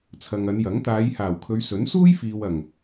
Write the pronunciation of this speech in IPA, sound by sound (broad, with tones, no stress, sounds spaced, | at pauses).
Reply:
t͡sʰ ɐ˨ ŋ ɐ˨˧ n j ɐ˨˥ ŋ t̪ aː˨˧ j h aː˨˩ w kʰ ɵ˨˧ ɥ s ɵ˨˥ n s uː˥ j f iː˨ w ɐ˨˩ ŋ